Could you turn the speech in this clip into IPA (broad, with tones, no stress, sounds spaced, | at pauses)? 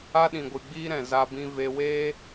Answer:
a˦ ɗ ĩ˨ ɡʷ ɨ˨ ɡ͡b iː˦ ɾ ɛ̃˨ z a˧ b ĩ˧ v e˧ w eː˦